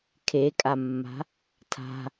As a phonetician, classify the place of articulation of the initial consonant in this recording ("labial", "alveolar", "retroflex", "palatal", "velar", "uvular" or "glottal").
velar